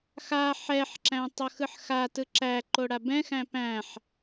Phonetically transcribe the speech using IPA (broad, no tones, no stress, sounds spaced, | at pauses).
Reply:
x a ħ ɛ ħ ǁ æ̃ tˤ ʌ x ɯ ħ x a t ɯ ǁ æ ǃ o ɽ a b ɛ̃ x æ̃ p æ̃ ħ